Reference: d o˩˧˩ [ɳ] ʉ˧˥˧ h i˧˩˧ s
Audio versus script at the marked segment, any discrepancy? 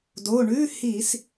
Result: no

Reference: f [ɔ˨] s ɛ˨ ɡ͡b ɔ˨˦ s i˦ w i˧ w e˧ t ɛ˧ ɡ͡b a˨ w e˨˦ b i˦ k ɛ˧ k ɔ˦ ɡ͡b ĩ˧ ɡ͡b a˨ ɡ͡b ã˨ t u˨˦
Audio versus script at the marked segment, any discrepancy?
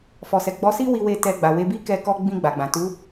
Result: no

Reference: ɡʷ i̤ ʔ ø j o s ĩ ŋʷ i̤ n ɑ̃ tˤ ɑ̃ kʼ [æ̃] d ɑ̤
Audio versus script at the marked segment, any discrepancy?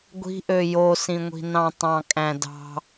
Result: no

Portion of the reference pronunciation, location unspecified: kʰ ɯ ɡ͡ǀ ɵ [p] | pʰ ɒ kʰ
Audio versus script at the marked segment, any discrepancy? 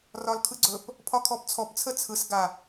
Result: no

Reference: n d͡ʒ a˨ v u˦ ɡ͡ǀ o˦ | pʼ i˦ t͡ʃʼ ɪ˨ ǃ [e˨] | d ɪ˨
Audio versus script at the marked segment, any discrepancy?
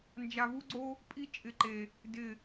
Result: no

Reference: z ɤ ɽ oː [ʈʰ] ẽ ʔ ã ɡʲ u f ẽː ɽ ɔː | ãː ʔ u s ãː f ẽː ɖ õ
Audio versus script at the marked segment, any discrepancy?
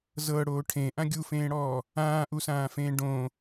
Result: no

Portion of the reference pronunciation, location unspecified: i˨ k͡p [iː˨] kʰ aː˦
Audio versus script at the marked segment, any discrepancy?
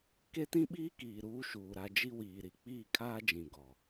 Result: yes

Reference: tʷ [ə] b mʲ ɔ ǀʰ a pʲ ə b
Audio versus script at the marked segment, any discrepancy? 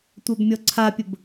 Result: yes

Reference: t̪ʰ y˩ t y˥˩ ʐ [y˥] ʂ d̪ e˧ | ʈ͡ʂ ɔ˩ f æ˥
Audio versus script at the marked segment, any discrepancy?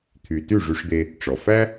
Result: yes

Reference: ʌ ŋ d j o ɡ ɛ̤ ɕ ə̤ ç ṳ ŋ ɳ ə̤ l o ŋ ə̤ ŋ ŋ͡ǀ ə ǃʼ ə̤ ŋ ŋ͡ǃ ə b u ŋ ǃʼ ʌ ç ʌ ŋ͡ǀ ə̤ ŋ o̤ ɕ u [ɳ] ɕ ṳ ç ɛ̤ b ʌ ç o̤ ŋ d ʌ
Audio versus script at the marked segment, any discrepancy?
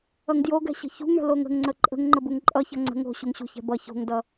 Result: yes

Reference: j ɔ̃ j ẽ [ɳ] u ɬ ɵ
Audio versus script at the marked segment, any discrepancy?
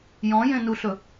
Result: yes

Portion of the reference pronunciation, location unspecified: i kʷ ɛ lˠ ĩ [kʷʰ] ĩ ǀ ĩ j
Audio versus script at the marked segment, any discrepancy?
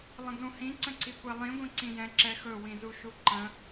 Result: yes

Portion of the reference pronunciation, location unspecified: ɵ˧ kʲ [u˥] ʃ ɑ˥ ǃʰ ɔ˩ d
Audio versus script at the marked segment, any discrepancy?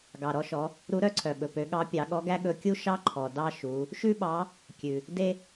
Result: no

